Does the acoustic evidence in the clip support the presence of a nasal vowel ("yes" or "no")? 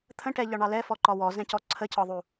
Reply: yes